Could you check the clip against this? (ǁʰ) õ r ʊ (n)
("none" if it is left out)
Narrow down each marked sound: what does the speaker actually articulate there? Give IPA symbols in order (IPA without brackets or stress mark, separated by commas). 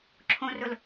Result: ǁʰ, l